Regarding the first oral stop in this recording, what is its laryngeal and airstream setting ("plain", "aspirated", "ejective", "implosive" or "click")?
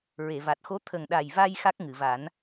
plain